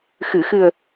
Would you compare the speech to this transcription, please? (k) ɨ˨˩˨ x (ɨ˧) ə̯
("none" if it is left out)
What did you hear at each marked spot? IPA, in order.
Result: x, ɨ˨˩

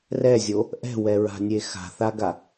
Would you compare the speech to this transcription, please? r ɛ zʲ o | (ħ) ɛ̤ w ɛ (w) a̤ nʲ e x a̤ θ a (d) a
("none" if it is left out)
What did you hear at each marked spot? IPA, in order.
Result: ʔ, ɹ, ɡ

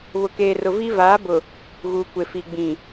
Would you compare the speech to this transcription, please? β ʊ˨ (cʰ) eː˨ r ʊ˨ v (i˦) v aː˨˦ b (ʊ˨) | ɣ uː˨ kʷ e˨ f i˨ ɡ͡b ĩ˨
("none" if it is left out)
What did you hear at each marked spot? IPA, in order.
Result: k, i˦, ʊ˨

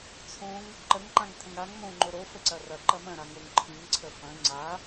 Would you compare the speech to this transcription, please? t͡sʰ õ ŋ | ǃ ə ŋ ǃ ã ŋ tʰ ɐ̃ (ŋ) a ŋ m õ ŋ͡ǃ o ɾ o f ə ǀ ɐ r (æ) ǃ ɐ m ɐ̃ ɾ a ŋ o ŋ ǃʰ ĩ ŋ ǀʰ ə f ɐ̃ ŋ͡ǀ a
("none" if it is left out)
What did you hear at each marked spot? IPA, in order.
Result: ŋ, ɐ

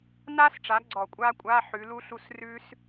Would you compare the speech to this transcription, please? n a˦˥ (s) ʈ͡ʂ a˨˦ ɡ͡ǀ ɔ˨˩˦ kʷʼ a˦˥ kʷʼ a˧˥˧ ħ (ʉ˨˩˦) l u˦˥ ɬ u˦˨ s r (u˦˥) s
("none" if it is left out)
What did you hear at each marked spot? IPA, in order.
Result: s, ʉ˨˦, ʉ˦˥

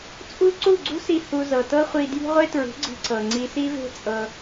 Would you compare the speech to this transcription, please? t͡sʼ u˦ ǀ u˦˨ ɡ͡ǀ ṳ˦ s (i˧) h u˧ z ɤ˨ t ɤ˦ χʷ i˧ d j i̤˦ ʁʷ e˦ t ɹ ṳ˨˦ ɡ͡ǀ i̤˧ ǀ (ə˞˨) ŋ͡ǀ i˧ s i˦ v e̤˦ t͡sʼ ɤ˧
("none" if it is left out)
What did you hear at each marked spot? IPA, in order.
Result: i˧, ɤ˨

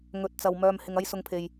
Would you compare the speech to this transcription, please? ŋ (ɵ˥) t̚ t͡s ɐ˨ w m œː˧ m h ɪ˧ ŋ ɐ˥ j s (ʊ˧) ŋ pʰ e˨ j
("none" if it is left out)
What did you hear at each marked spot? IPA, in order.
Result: ɵ˨, ʊ˧

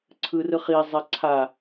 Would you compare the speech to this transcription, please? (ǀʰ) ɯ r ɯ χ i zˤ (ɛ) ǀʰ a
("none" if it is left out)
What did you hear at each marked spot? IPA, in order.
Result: ǀʰ, ɛ

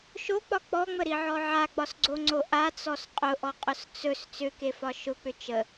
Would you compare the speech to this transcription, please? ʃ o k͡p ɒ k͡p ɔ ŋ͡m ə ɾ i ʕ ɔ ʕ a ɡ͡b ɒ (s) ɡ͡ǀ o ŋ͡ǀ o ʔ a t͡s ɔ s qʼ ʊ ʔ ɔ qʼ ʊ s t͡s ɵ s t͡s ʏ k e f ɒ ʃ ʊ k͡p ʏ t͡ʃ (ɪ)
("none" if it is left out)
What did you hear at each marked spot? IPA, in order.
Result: s, ə

